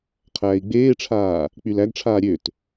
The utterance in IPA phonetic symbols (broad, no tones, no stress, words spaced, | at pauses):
qʰæːi̯ɡ͡beːʈ͡ʂʰaː | k͡pylæɡʈ͡ʂʰaː ɾʲøt